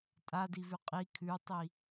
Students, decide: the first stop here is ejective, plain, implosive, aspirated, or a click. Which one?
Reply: ejective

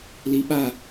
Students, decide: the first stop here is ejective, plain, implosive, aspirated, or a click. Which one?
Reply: implosive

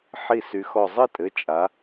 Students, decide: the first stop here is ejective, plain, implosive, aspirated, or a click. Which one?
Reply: ejective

